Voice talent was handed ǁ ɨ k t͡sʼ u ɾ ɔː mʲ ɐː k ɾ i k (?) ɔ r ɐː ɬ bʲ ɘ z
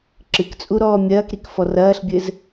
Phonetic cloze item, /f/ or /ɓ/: f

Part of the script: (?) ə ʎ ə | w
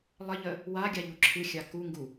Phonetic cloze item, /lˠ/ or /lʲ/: lˠ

